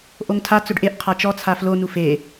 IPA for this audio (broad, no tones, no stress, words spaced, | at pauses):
ʔoŋtʰa t͡sʊɖʔeʔ qʰat͡ʃɔ t͡sʰaflo nufe